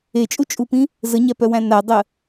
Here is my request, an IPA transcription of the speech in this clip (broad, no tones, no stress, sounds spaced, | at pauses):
e t͡ʃʼ u t͡ʃʼ u p ĩ | z ə ɲ æ p œ w æ̃ n a dˤ ə